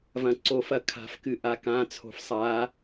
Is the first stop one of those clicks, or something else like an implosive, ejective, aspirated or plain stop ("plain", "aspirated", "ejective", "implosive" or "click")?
click